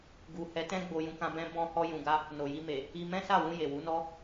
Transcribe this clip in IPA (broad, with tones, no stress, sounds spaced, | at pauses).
ɡ u˨ h ɛ˨˦ t ɛ̃˦ ɡ͡b o˧ j ũ˧ k ã˧ b ɛ̃˦ b ɔ̃˧ h ɔ˧ j ũ˨ ɡ a˧ | n o˨ j i˧ m e˨ | i˧ m ɛ̃˦ s a˦˨ w ũ˧ j e˨ w u˨˦ n ɔ˧